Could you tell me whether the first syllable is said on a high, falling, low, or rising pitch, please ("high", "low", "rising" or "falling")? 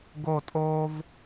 falling